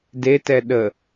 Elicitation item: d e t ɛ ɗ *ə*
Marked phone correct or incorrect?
correct